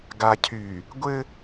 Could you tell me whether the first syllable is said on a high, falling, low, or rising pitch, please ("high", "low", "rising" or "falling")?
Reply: low